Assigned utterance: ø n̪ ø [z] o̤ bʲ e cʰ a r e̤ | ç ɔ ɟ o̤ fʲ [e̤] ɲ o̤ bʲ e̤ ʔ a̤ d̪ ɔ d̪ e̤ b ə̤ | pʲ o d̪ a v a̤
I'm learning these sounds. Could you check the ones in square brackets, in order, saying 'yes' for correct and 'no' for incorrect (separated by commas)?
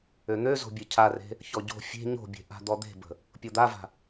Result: yes, yes